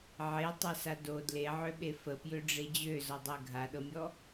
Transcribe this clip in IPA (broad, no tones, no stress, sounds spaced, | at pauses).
ʕ e tˤ ɜ s a d o d l e ʕ ø ɓ e f ə p j ø ɖ͡ʐ e d͡ʑ ø z ɔ dˤ ɜ ɡʱ a ɗ ɤ mʲ ɔ